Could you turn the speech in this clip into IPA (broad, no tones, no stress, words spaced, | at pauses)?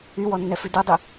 ywɔnːɛfʉ dudˤy